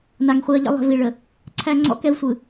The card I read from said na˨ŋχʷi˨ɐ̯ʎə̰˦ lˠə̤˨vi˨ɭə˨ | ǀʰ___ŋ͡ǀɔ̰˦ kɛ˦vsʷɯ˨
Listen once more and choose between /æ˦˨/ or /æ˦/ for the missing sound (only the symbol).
æ˦